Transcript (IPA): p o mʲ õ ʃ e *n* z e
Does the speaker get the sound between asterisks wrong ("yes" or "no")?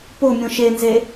no